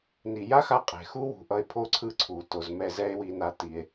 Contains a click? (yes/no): yes